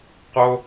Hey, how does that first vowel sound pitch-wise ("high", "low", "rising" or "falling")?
high